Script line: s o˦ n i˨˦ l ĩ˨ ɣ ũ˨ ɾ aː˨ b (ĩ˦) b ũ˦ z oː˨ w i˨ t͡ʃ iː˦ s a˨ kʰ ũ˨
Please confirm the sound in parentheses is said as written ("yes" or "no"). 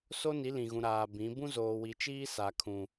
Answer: no